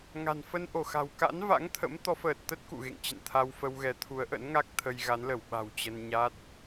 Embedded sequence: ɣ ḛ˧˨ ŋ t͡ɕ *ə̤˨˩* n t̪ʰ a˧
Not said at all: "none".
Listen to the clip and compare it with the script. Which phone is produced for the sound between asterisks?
ə̰˧˨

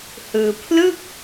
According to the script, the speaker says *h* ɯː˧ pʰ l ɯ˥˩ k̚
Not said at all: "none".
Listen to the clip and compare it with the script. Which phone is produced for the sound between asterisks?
h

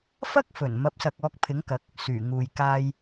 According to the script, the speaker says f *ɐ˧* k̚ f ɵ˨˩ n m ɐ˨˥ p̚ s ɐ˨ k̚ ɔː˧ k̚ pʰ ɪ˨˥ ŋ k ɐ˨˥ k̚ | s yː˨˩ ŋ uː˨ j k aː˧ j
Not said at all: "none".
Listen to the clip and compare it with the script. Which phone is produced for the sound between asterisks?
ɐ˥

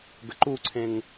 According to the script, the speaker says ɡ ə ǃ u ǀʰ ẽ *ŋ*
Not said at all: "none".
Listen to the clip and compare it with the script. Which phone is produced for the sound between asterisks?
ŋ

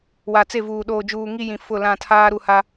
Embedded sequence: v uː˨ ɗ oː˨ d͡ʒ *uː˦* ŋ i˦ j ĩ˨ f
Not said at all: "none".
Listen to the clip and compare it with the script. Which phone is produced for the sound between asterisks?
uː˨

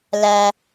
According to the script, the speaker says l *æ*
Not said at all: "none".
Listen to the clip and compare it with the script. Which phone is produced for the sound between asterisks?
æ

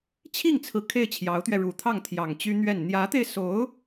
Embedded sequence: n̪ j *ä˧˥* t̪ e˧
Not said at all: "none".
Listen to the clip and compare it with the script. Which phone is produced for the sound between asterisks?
ä˧˥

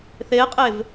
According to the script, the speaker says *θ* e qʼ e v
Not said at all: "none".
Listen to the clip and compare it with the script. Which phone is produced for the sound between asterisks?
θ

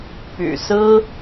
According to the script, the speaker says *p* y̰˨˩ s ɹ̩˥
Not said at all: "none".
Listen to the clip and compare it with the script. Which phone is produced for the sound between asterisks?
p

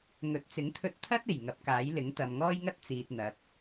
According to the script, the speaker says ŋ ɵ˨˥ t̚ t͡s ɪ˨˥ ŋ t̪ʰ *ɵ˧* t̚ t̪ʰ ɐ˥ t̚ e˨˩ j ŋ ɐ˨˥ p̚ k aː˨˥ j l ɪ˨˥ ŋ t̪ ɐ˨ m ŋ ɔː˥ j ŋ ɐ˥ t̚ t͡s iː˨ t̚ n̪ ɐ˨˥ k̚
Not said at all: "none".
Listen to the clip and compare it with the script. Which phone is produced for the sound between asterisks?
ɵ˧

